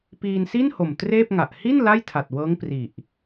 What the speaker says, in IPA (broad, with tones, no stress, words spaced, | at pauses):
piː˧nsi˥˩nho˨˩m treː˥˩p̚ŋa˨˩ʔ hi˥˩n la˥˩jtʰa˨˩t̚wɤː˦˥ŋ pri˨˩ʔ